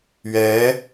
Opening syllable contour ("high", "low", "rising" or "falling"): rising